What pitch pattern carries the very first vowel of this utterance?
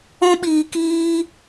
high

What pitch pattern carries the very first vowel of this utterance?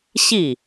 falling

